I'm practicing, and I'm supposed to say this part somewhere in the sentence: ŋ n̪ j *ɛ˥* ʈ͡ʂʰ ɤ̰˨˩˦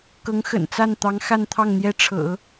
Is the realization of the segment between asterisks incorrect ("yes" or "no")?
no